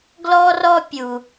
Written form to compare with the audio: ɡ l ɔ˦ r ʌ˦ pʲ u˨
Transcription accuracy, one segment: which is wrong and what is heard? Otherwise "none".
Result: ʌ˦ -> ɔ˦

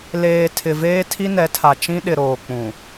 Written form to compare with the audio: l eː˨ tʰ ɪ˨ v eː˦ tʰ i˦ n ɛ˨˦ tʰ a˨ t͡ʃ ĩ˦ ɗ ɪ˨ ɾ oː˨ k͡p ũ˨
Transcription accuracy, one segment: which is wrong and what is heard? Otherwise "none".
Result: none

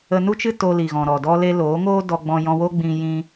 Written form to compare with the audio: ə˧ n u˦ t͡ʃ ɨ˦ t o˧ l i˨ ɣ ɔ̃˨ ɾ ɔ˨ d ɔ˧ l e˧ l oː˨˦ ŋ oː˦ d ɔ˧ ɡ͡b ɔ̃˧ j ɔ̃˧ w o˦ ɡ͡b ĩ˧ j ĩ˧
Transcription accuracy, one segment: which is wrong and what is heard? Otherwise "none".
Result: none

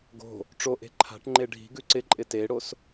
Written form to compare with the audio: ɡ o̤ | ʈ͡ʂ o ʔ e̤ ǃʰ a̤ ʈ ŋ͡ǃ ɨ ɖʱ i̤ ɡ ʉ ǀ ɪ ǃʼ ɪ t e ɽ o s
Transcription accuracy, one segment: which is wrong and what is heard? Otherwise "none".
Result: ɨ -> e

